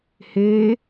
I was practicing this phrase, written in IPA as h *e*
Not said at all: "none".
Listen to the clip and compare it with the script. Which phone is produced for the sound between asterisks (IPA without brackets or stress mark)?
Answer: eː